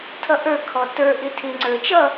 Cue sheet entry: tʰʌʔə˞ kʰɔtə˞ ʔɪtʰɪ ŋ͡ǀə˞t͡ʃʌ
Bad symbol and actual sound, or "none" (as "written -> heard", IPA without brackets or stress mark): none